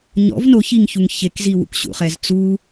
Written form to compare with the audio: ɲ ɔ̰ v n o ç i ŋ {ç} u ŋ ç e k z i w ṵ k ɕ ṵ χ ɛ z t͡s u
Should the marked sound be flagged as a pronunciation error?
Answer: no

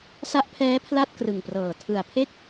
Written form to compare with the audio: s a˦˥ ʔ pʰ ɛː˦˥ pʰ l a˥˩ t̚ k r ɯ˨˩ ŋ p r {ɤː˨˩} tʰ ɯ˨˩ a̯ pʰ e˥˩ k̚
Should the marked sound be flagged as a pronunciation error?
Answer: no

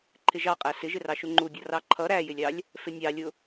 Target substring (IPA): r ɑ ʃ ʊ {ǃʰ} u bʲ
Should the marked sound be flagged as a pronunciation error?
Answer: yes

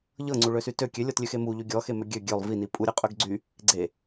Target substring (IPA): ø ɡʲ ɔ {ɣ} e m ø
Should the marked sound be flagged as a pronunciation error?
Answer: yes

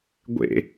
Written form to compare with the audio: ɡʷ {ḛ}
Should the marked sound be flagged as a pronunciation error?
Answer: no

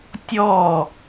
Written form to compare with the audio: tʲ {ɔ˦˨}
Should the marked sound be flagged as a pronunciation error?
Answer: no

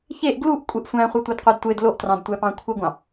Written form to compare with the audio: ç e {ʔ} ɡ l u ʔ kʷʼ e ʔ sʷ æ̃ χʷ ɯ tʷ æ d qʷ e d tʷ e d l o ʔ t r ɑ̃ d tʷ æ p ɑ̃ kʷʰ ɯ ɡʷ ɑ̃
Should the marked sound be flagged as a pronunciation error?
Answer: no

